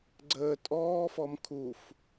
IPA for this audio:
ɡ͡ǀəː tʼɔːfɔm kʰuf

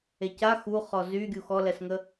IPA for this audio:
eca xu χɔzy ɡʲuxɔlɛsŋə

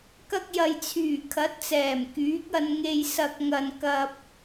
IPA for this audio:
kɐ˧k̚jɐ˨jt͡sʰyː˨˩ kʰɐ˨˥t̚t͡sɛː˨˩m kyː˨˥k̚ɐ˧nŋe˧j sɐ˨k̚ŋɐ˨nkɐ˧p̚

